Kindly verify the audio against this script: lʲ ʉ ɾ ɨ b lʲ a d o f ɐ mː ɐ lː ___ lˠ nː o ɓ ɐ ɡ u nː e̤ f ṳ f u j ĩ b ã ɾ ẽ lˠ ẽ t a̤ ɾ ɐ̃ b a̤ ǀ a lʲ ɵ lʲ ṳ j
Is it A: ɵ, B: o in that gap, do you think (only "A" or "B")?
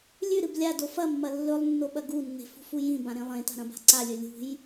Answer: A